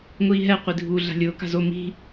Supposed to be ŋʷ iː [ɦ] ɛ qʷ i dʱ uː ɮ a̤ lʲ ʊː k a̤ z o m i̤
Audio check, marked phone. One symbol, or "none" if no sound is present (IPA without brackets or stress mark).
ɦ